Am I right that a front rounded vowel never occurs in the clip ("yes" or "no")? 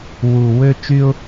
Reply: no